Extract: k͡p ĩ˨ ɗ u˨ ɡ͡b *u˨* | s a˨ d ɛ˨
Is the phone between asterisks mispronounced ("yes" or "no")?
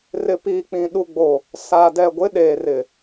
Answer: yes